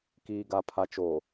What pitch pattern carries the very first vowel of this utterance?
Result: low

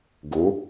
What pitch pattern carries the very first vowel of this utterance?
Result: rising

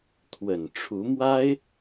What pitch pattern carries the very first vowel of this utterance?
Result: low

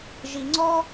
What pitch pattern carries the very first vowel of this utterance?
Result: low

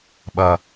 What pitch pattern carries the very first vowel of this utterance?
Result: low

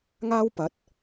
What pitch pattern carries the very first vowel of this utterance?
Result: high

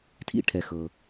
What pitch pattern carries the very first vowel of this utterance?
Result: falling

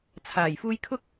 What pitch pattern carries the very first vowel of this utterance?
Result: low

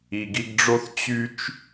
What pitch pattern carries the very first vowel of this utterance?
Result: low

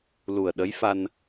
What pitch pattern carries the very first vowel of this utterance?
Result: low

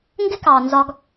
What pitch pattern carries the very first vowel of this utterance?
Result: high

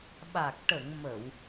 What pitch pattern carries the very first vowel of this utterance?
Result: low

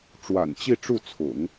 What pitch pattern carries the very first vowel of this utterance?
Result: low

